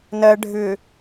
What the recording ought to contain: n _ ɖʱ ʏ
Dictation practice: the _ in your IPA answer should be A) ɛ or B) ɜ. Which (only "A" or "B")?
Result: B